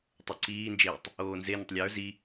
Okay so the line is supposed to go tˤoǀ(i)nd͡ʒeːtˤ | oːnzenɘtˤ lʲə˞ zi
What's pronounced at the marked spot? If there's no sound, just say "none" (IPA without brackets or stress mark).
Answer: iː